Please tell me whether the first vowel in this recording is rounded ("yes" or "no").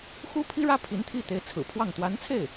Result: yes